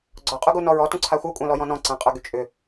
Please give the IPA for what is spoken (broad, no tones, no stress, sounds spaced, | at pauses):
ɡ͡ǀ ɔ qʼ u ɡ u n ɔ ɹ ɔ t ũ ǀʰ a xʷ œ kʷʼ œ̃ l ɔ j ɔ̃ n ɔ̃ ǀ ã qʼ œ ɡ y t͡ʃʼ ʏ